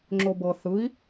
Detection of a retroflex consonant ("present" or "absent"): absent